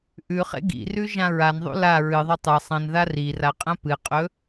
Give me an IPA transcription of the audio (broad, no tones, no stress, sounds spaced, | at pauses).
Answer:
ʔ ʉ χ ḛ ɡ ḭ r ʉ ʒ ã ɹ a n ðˤ ṵ l a ɹ ɨ ðˤ ɵ tˤ ɨ sˤ ɐ̃ n ð a r i r a qʼ ɐ̃ p ɨ qʼ ɵ